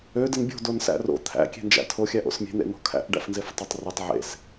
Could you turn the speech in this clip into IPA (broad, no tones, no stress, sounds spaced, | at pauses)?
ø d ə n bʲ o̤ d o n s æ̰ r o̰ t̪ʰ æ̰ kʲ e̤ n d͡ʒ æ̰ tʰ o xʲ æ ʔ o̰ s mʲ e̤ n̪ ḛ n̪ o̤ kʰ æ̰ ʔ ɖ æ̰ f n z e f tˤ ø tˤ r ɯ tˤ ʕ ḛ s